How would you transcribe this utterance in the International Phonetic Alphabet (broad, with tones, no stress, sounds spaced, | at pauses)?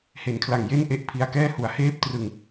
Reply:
h e˩˦ n kʰ l a˨˩ ŋ j e˥˩ n ʔ e˦˥ ʔ pʰ i˧ a̯ k ɛː˥˩ h u˩˦ a̯ h eː˦˥ p̚ t r ɯ˧ ŋ